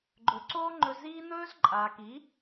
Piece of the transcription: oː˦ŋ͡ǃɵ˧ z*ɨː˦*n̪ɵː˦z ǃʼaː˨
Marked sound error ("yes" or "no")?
yes